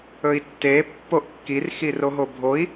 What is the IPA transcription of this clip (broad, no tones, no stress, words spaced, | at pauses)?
ɵi̯tːe pːoʔkːir xiroɦobʱoi̯